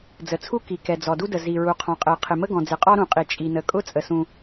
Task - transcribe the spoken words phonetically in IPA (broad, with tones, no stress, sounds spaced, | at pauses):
d͡z ə˩ t͡sʰ u˥ k i˩ k ɛ˩ d͡z ɔ˩ d u˥ d ə˩ z i˩ ɹ u˩ qʰ ɔ̃˩ qʼ ɛ˩ qʰ ɪ˩ m ə˥ ɡ ɔ̃˩ d͡z ɪ˩ qʼ ɔ˥ ɾ ũ˩ qʼ i˩ t͡ʃʼ i˩ n ə˩ kʼ ʊ˥ t͡sʼ ə˩ s ũ˩